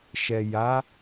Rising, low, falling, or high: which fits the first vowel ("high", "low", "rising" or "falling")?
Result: low